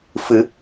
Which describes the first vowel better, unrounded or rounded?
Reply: unrounded